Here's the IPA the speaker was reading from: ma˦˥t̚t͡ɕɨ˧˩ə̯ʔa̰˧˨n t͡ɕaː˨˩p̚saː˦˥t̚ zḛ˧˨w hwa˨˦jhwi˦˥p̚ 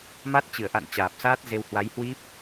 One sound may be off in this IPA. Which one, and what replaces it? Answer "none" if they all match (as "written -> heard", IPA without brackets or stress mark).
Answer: ḛ˧˨ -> e˧